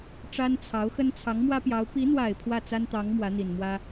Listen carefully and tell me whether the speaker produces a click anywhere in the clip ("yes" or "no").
no